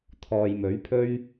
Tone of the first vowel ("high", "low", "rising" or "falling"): low